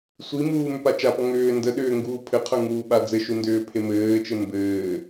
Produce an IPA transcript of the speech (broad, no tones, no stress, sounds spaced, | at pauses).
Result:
sʷ i m uː m ʏ p a t͡ʃ a p ɔ ŋ ʏː n d ə ɗ ʏː ŋ ɡ uː pʰ ɘ qʰ ə˞ ŋ uː ɓ a d͡z ɘ ʃ u n d ʏː pʰ e m ɘː t͡ʃ ɘ m b ɘː